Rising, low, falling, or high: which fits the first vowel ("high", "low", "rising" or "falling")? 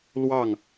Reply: falling